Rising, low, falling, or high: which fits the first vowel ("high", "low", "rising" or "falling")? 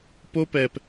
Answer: high